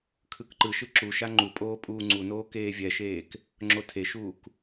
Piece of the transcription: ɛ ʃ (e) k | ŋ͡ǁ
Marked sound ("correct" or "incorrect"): incorrect